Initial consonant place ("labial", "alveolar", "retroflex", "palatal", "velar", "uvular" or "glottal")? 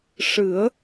retroflex